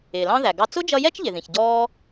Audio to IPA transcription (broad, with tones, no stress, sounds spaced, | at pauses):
ɪː˨ l ɑ̃˦ ð æ˨ ɡ ɑ˧ t͡s ʊ˦ d͡ʒ ʌ˧ j ɛ˦ t͡ʃ ʎ ɪ˨ ð ĩ˨ ç ɟ ɔː˦